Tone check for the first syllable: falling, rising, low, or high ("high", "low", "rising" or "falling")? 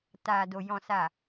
low